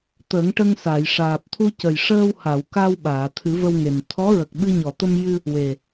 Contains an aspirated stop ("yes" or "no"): yes